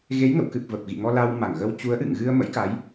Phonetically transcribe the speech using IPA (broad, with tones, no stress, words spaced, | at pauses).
ɣe˨˦jŋə̰˧˨wkɨ˨˩p̚ və˨˩p̚ɣḭ˧˨ŋɔ˧ la˧wma˧˩ŋɣə˧w t͡ɕu˨˦ə̯ʔɨ̰˧˨ŋɣɨ˧ə̯ mə̰˧˥jka˨˦j